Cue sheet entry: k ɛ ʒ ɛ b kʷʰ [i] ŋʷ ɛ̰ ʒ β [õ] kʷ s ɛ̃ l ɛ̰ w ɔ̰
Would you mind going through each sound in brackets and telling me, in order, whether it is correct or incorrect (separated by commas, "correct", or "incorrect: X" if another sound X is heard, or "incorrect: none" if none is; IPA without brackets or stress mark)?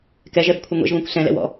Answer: incorrect: ɨ, correct